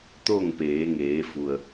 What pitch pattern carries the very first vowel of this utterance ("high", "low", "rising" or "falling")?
falling